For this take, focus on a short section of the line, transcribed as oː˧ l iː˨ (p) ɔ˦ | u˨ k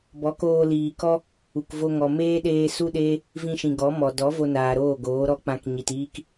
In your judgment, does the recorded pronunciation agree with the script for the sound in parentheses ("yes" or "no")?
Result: no